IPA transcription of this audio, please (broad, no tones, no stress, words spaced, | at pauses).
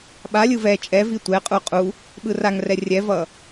ɓalʲɯ vɛ t͡ʃʼɛvi tʷɛqʼu qʼu | ɓɯraŋrɛ rʲɛvʌ